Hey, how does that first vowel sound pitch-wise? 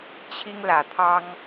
high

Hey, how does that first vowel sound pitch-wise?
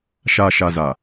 low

